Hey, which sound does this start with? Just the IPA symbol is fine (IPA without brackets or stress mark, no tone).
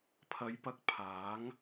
pʰ